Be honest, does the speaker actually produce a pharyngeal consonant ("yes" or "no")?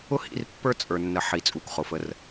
yes